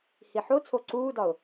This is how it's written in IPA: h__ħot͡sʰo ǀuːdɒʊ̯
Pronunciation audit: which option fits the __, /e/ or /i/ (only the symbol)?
i